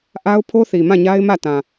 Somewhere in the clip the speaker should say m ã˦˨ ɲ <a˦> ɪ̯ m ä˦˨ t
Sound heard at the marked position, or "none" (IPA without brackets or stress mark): a˦